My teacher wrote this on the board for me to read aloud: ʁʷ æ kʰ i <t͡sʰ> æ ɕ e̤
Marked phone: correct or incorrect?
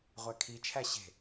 incorrect